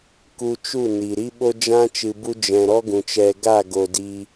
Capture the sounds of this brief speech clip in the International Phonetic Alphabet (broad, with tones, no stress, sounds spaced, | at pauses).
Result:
k u˧ t͡ʃ u˦˨ n i˨ ɾ i˦ ɓ o˦ d͡ʒ ã˦ t͡ʃ ɨ˨ b u˧ d͡ʒ ɛ̃˨ ɾ ɔ˦ ɡ ũ˨ t͡ʃ ɛ˧ ɡ a˦˨ ɡ o˨ d i˧